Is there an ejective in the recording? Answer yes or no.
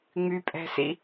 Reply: yes